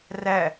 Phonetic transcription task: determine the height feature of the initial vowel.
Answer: low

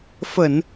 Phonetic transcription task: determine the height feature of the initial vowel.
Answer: mid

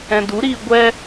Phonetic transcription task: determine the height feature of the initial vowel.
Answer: mid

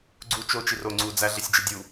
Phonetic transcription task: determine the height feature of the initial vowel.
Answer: high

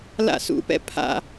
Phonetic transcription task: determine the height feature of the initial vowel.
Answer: low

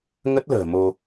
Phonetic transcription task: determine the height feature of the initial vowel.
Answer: mid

